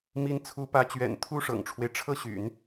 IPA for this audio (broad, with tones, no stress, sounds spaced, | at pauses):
m i˧˥ n t͡sʰ u˧˥ p ä˧˥ t͡ɕ ɥ ɛ̰˨˩ n t̪ʰ u˥ ʂ ɤ̰˨˩ ŋ ʈ͡ʂʰ w e˦ ɪ̯ ʈ͡ʂʰ ɤ˥ ɕ y̰˨˩˦ n